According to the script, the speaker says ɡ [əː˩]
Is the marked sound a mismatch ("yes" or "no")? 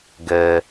no